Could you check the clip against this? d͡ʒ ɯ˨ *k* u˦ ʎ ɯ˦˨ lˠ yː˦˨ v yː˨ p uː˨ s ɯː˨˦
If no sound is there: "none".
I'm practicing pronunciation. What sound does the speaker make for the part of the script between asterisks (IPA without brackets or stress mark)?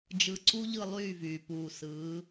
ǀ